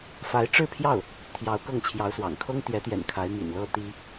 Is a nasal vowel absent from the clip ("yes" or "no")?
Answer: yes